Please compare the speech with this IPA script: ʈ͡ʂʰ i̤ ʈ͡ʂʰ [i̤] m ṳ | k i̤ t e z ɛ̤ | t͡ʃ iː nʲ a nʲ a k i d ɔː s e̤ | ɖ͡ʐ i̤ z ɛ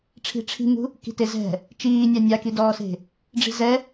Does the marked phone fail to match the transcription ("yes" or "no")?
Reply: no